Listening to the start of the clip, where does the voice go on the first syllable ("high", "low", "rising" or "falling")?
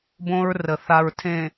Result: high